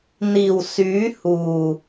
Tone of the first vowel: low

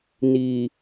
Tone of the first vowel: low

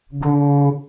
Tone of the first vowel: high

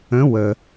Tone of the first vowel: rising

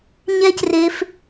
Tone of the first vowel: high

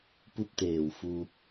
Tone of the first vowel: falling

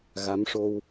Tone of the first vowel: rising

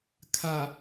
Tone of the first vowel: low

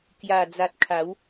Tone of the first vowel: low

